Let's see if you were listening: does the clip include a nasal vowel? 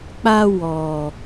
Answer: no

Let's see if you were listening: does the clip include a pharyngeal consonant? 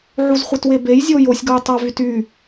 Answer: yes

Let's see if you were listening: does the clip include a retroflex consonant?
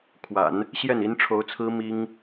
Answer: yes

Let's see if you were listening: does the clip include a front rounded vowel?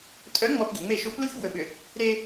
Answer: yes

